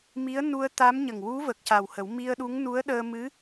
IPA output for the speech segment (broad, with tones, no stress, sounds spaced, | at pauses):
m i˧˥ ə̯ n u˧ ə̯ t̪ a˧˥ m ɲ ə˨˩ ŋ w u˧˥ v ə˨˩ k̚ c a˨˩ w h ə˨˩˦ w m i˧ ə̯ ɗ u˧˥ ŋ n u˧˥ ə̯ ɗ əː˧ m ɨ˧˥